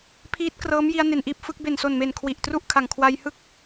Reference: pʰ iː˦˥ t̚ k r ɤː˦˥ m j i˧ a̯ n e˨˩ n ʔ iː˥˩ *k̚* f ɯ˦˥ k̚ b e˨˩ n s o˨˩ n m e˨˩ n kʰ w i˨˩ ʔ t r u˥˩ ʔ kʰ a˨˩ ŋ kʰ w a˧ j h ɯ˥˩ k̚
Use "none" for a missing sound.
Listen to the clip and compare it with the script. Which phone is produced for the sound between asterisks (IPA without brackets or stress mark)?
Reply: p̚